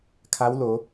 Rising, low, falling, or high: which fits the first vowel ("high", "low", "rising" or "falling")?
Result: rising